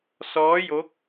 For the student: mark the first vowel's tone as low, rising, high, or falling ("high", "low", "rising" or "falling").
rising